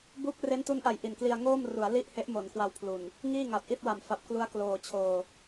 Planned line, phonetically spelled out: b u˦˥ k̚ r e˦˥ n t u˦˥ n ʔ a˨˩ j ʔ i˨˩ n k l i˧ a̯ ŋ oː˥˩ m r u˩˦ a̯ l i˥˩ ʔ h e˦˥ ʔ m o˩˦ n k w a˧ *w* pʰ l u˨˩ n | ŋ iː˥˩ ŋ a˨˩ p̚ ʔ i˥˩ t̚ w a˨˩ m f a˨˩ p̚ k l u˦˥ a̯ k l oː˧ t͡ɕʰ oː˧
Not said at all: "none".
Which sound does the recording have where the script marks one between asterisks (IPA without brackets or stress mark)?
w